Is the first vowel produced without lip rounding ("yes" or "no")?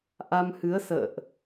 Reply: yes